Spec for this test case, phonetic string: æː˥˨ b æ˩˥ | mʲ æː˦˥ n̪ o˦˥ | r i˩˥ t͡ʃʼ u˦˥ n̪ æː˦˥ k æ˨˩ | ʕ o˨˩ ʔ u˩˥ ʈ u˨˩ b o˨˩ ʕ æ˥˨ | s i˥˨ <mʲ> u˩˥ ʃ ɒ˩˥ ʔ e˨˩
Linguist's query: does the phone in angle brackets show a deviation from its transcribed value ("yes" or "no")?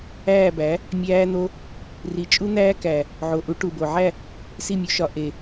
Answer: no